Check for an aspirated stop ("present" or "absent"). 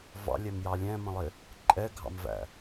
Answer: absent